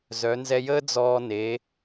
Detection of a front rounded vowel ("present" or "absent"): present